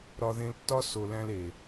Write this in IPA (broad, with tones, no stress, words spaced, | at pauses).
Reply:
ɾɒ˧ ðẽ˧ltːɒ˦ so˧ læ̃˧le˨